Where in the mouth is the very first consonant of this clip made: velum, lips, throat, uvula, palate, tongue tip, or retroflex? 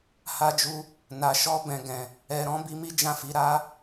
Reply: throat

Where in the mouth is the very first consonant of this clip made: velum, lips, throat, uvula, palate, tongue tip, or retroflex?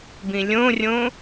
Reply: lips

